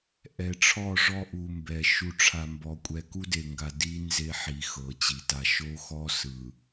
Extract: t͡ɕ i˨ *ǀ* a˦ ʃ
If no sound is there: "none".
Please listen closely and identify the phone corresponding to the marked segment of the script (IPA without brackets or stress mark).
t